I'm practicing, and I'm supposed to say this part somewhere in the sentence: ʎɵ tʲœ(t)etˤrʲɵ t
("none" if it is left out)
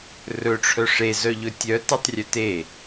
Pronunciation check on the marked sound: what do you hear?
t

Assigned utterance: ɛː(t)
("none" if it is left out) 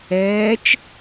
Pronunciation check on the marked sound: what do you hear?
t͡ʃ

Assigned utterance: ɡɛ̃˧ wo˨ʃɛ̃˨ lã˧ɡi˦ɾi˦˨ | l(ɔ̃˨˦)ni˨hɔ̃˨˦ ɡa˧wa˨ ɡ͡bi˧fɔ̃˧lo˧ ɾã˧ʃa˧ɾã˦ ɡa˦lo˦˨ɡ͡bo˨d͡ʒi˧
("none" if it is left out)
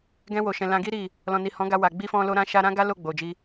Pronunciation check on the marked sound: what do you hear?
ɔ̃˨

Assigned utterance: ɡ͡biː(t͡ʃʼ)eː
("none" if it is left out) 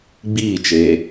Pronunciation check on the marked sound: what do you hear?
t͡ʃ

